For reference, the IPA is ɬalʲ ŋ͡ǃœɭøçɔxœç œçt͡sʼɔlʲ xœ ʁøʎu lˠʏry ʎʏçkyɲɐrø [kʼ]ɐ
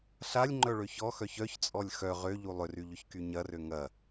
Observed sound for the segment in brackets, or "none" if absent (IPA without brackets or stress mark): ŋ